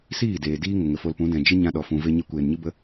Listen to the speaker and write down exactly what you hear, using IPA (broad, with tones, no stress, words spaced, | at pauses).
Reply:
siː˦˨deː˨ diː˦ ŋə˨ŋə˨fo˧lpũ˨˦ dɛ̃˨d͡ʒɨ˦ɲã˧ ɗɔ˨fũ˨ve˧ ɲe˧kʷeː˨nɲɨ˦ bə˦